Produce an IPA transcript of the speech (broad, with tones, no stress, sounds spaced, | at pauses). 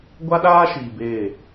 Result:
ɡʷ a˦ ɗ aː˦ ʃ i˨ b e˦˨